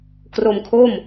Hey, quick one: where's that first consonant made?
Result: velum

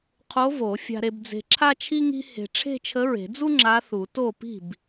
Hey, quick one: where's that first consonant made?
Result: uvula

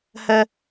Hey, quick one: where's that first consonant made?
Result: throat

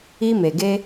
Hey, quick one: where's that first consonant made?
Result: lips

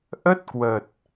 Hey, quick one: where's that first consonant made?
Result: throat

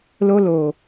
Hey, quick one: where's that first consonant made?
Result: tongue tip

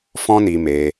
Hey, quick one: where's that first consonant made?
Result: lips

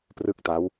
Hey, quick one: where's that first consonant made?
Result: lips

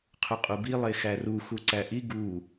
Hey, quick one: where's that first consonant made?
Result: uvula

